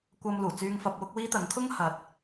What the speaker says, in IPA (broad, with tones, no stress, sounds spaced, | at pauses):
kʷ ɐ˧ m l uː˨˩ t͡s yː˧ ŋ f ɐ˧ p̚ w ʊ˥ k̚ w iː˥ t̪ ɐ˨˥ ŋ kʰ ʊ˥ ŋ h ɐ˨˥ t̚